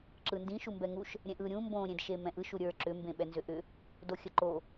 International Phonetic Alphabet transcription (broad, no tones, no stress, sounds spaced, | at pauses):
ǁ ɯ n d ĩ ʃ u m b ɛ ŋ u ʃ | ɾʲ ɛ̃ ʔ ɯ ɾʲ ũ m b õ ɾʲ ẽ d ʃ e m ɛ̃ ʔ ɯ ʃ u ɾʲ ə˞ ǁ ʏ m b ẽ ɓ ɛ n z ʏ ʔ ʏ | d o xʲ ə ǃ o